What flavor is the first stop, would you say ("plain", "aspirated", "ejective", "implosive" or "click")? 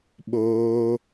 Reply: implosive